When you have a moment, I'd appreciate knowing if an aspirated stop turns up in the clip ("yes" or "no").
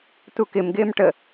no